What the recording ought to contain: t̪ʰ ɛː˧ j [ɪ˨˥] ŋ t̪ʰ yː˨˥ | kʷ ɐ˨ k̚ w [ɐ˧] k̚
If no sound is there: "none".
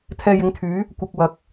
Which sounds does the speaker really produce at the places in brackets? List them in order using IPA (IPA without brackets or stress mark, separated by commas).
ɪ˨˥, ɐ˨